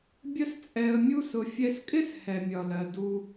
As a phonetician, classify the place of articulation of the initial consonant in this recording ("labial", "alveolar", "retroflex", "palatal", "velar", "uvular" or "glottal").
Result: labial